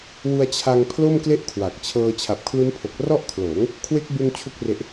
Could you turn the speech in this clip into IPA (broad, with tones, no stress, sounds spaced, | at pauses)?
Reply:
w u˧ a̯ t͡ɕʰ a˧ ŋ pʰ l o˥˩ m k l e˥˩ ʔ kʰ w a˨˩ k̚ t͡ɕʰ ɤː˧ t͡ɕʰ a˨˩ p̚ kʰ l u˦˥ n pʰ o˨˩ k̚ r ɔ˥˩ ʔ kʰ l oː˩˦ ŋ | kʰ w e˦˥ k̚ b u˧ n t͡ɕʰ u˥˩ k̚ r e˦˥ ʔ